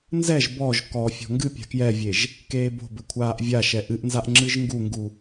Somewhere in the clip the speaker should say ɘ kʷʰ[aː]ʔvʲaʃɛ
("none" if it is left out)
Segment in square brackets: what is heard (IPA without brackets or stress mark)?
aː